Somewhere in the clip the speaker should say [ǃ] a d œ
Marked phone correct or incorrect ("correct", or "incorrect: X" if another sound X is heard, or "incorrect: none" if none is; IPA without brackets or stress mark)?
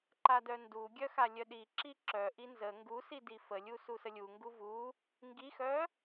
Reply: correct